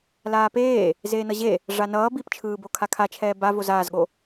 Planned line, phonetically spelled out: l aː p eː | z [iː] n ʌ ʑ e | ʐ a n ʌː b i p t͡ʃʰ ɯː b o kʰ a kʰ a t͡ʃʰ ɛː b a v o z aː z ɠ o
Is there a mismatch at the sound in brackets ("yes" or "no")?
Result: yes